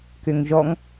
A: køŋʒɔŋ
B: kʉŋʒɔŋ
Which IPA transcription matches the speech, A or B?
A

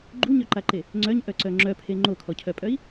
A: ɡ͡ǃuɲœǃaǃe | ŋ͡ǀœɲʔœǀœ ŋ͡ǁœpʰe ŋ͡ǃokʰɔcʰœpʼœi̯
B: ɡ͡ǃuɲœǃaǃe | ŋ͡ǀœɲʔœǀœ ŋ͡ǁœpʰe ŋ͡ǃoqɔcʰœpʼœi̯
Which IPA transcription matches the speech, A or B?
A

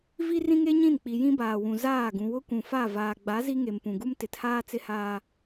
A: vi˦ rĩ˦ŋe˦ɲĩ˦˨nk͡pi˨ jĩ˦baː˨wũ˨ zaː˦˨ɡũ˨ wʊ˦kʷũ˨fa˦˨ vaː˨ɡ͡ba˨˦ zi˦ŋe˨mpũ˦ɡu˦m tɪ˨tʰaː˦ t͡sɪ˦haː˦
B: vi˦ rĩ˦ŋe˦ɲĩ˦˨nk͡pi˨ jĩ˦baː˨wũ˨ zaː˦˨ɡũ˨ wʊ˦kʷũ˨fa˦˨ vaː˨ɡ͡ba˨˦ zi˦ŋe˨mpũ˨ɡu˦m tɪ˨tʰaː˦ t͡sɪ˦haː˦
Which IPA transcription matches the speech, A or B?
B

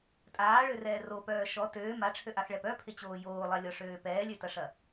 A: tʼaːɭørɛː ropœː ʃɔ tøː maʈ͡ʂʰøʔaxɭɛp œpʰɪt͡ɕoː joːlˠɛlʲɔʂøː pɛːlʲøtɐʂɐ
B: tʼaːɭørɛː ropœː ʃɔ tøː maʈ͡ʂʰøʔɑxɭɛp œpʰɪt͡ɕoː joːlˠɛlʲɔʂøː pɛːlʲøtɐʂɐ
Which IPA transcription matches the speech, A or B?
A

